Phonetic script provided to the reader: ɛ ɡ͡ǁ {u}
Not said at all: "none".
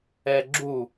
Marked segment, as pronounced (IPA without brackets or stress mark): u